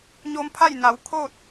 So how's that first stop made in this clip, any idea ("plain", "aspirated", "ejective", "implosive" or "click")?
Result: aspirated